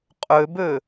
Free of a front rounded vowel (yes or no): no